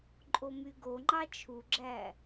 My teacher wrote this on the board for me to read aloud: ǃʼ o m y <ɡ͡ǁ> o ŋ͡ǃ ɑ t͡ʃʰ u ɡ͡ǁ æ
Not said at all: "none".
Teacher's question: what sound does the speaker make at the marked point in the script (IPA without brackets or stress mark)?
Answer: ɡ